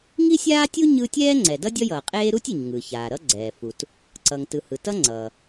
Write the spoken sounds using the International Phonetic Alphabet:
ŋ i˥ sʲ aː˥ tʲ u˥ ɲ ɯ˥ tʲ ɛː˥ ŋ͡ǀ ɛ˩ d ʌ˥ dʲ ʌ˥ j ʌː˩ qʼ eː˥ ɾ u˥ tʲ i˩ ɲ ŋ ɯ˩ ç aː˩ ɾ ʌ˥ ɡ͡ǀ ɛː˩ f u˩ t | ǀ ʌ˩ ŋ t ɯ˩ h ɯ˩ t ʌ˥ ŋ͡ǀ ʌː˩

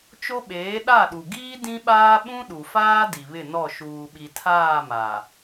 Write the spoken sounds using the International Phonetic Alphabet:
t͡ʃ o˦ ɓ eː˨˦ ɗ a˦˨ ɗ u˨ ɡ iː˦ d ĩ˦ ɓ aː˦ ɓ ũ˦ ɗ u˨ f aː˦ d i˨ β ɪ˦˨ n ɔ˦˨ ʃ uː˨ ɓ i˨ tʰ aː˦˨ m a˨

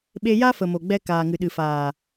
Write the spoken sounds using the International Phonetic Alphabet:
ɓ e˧ j a˦ f ə˨ m o˨ ɡ͡b ɛ˧ k aː˨ ŋ ɨ˨ ɗ ɨ˨ f aː˨

